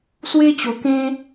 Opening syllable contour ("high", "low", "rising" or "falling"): high